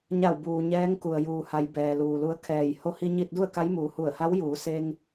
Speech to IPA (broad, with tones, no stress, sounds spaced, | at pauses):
ɲ a˧˩ w b uː˩ ɲ ɛː˧˥ ŋ k u˩ ə̯ j uː˩ h a˩˧ j b ɛː˩ l uː˩ l u˧˥ ə̯ kʰ ɛː˧˩ j h o˧ h i˧ ɲ i˧ t̚ d u˥˨ ə̯ k a˧˥ j m uː˩˧ h u˧˩ ə̯ h a˧˥ w j uː˩˧ s e˧ ŋ